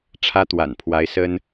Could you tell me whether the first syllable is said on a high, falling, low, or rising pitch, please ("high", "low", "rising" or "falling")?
high